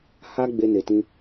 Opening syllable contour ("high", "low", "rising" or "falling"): high